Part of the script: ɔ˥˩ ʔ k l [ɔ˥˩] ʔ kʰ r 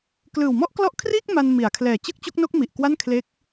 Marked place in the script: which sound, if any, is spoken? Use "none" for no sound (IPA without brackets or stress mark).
ɔ˦˥